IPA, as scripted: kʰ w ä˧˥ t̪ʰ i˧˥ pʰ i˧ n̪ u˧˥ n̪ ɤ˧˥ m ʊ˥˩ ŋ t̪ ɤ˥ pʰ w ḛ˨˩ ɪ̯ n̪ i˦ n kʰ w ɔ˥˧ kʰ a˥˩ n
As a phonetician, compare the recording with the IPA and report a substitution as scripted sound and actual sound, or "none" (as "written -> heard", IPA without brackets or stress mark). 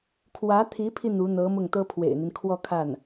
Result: none